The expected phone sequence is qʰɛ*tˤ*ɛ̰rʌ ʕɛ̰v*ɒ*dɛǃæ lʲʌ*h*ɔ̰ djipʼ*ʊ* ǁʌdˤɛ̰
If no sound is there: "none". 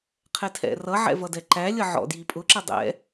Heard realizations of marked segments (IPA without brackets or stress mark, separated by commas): tʰ, ʌ, ʕ, ʊ